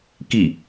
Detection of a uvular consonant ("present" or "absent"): absent